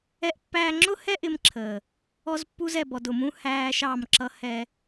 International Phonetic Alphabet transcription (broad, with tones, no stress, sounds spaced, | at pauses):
ɛ˦ ʔ pː æː˦ ŋ͡ǁ ʊ˦ h ɛ˦ ʔ ɪ˦ m ǁʰ əː˨ | ɔ˦ z pː u˦ z ɛ˨ b ɔ˨ d ʊ˨ m ũ˦ h æː˦ ʃ ɑ˦˨ m ǁ ʌ˦ h ɛ˦